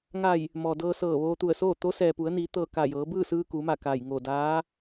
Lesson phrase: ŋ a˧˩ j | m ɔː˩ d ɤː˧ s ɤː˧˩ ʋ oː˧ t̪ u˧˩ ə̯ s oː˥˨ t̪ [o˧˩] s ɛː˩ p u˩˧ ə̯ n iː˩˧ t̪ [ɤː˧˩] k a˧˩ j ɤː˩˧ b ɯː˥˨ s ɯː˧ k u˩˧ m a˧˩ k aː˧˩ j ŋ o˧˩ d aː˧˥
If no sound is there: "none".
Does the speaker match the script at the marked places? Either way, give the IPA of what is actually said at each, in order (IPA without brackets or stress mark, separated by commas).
o˧˥, ɤː˧˩